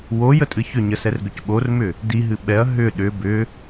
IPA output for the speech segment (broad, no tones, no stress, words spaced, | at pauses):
wojətʼɨ çʏɲəsɛrɡʏc ɓormʏ | diɦɨ ɓɛɐ̯ ɦʏ ɗʏ bʏ